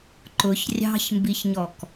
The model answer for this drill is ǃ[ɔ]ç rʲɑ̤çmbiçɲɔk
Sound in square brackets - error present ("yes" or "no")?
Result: yes